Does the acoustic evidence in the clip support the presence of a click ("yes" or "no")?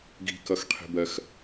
no